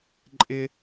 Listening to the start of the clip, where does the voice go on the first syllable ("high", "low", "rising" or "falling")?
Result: high